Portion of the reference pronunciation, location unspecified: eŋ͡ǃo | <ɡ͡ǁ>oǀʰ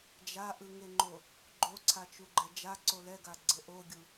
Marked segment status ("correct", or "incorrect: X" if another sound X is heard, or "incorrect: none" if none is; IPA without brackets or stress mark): incorrect: ɡ͡ǃ